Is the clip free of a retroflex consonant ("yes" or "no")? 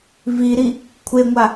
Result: yes